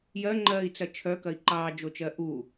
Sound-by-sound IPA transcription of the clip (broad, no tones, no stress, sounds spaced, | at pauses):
j ɜ ŋ͡ǃ ɜː i̯ t͡s ɐ t͡ʃʰ œ k ɐ i̯ ǃ ɑː d͡ʒ o t͡ʃ ɜ ʔ u